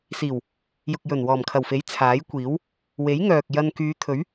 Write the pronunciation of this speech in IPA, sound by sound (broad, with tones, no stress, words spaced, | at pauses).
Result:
siː˨˩w | jʊ˨k̚jɵ˨˩n wɔː˨˩mkʰɐ˨˩wfe˨˥j t͡sʰaː˨˥jkʷiː˨˥w | we˨˥j ŋœː˨k̚ jɐ˧n kyː˨˧t̪ʰɵ˨˥ɥ